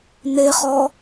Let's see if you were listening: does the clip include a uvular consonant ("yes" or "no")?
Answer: yes